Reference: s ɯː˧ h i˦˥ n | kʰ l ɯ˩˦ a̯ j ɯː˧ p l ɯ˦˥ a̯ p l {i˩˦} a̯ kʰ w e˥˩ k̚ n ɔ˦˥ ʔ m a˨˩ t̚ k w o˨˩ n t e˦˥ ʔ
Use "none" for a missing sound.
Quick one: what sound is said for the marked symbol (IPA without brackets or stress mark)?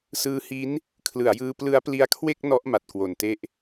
i˦˥